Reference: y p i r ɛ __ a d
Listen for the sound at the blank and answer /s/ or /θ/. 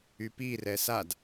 s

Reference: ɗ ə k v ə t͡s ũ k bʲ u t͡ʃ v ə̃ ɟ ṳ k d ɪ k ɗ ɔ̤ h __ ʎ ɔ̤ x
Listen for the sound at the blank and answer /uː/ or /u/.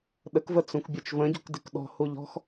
u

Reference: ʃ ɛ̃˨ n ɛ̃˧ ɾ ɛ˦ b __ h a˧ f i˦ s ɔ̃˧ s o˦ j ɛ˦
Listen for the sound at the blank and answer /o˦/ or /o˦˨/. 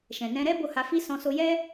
o˦˨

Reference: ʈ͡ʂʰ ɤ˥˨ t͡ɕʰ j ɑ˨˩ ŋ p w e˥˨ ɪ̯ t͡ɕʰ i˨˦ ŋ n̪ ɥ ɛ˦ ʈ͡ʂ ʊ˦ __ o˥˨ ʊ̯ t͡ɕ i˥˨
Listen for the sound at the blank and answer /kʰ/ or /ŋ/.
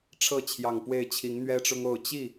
ŋ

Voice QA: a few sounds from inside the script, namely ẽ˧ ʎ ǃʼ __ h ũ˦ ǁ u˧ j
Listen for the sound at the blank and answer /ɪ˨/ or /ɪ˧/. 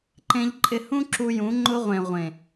ɪ˧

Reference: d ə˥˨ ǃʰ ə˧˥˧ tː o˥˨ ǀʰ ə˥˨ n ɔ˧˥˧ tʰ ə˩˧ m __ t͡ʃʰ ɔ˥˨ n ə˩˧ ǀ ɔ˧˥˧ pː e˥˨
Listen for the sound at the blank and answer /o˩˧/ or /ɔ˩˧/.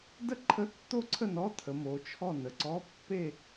o˩˧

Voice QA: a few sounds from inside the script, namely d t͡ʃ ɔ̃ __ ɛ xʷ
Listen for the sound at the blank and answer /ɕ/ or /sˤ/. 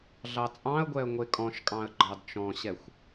ɕ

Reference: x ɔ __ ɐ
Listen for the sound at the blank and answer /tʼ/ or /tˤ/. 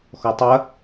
tˤ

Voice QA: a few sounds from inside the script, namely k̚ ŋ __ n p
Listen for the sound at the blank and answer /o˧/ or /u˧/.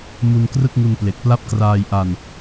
u˧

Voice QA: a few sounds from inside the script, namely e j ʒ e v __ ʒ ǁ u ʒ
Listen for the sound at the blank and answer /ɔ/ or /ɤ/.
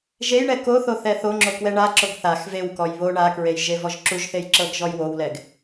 ɔ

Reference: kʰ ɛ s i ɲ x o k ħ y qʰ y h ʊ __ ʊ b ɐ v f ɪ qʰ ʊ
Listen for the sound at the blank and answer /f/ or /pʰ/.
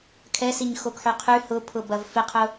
pʰ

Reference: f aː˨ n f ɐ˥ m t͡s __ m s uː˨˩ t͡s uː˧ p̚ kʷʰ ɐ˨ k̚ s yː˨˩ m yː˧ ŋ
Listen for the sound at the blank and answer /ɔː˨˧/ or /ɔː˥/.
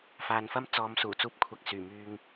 ɔː˨˧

